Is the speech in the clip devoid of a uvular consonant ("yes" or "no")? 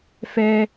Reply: yes